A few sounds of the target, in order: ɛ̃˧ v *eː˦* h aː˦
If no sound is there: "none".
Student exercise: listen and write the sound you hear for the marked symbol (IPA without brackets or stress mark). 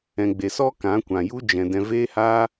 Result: eː˦